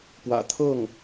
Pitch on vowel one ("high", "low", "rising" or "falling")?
low